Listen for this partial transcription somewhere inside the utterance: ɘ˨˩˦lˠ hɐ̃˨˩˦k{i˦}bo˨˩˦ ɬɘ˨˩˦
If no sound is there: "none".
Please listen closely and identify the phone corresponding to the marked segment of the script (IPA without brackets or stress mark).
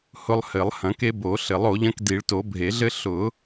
e˦